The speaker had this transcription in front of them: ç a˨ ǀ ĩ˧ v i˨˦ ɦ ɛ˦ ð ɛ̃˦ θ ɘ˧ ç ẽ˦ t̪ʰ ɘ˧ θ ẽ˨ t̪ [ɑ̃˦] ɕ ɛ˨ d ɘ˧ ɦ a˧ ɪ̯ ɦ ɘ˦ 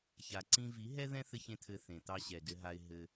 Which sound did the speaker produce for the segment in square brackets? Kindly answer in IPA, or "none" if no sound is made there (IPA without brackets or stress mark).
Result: ɑ˦